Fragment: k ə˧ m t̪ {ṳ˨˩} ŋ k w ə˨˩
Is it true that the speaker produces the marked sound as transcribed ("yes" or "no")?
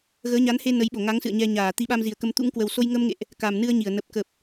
no